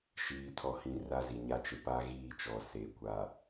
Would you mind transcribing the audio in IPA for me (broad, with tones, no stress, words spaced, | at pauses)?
ʃiː˨tʰɔ˨hĩ˨ ra˦zi˨ɲa˦ t͡ʃe˨pa˦ ɣiː˦˨t͡ʃɔ˨ se˨˦kʷa˨